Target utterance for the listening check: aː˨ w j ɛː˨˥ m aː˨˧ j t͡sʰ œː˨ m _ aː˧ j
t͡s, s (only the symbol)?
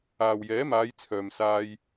s